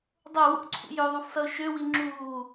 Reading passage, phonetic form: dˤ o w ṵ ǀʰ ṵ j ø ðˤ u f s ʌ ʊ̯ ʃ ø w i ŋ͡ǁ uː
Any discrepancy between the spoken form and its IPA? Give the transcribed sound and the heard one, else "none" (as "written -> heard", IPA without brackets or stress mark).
none